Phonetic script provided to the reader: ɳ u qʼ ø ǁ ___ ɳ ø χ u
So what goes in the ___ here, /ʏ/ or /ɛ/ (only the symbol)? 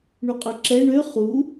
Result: ɛ